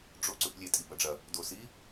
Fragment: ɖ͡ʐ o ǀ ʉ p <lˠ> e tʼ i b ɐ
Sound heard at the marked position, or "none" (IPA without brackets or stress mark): lʲ